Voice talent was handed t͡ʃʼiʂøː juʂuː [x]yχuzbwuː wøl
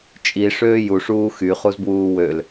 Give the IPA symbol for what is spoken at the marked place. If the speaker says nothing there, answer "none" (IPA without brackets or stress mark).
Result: x